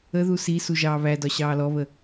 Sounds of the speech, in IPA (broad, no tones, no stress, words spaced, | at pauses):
əðu si suʒɑːβædɒ ɕɑːlɔβə